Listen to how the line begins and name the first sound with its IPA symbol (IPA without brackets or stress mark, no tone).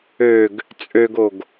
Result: ø